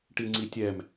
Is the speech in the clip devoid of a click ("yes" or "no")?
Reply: no